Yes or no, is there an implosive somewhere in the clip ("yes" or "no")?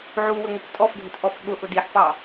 yes